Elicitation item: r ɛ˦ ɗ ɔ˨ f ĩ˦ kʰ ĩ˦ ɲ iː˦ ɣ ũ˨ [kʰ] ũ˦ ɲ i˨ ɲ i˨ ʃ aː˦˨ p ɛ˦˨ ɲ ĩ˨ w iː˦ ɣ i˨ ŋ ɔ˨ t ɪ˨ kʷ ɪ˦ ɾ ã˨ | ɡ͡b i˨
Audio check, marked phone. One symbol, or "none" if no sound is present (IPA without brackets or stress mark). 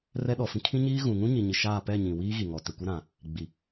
ŋ